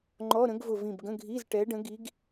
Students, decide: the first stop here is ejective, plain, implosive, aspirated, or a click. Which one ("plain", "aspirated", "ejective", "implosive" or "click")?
click